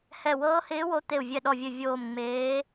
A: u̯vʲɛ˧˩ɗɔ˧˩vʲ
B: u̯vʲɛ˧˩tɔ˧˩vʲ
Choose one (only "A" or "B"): A